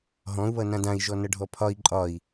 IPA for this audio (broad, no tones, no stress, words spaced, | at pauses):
ɦɔ̃u̯βʌ nãdãi̯ ʒɔnʌɖʱɔpʰɒi̯ ǃʼɒi̯